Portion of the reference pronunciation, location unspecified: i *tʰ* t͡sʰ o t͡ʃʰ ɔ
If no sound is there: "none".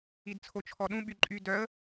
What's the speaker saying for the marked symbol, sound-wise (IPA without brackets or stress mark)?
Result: d